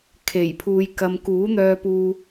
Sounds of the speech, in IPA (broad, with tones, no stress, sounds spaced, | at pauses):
kʰ e˨˩ j pʰ uː˨ j k ɐ˧ m k uː˨˥ n̪ œː˧ p uː˧